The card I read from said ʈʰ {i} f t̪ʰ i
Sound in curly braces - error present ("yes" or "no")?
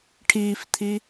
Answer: yes